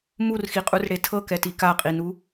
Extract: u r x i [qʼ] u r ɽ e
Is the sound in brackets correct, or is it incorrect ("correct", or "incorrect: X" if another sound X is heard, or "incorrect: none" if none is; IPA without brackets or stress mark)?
correct